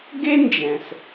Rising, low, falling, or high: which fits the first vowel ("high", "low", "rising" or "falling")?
high